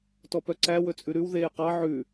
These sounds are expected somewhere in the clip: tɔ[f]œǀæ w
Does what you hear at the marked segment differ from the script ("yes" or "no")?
yes